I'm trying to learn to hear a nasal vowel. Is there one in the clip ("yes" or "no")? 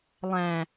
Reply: yes